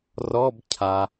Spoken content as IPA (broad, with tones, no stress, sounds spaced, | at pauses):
r ɔ˧˥˧ b cʰ a˩